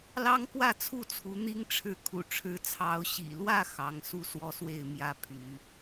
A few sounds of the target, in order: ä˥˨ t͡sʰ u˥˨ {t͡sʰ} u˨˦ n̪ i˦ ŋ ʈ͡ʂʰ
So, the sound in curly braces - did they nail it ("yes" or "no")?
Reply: yes